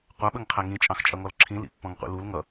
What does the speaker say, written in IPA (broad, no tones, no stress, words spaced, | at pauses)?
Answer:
qʷæɓəŋqʰæ ŋĩt͡ʃʼɑ̃xt͡ʃʼʌŋɔl ǁʰĩlḭpːɔ̃ŋqʷḭ lul ŋʌ